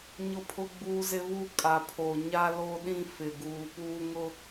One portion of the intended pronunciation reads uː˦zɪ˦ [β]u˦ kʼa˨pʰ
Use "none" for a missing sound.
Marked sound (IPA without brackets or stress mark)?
β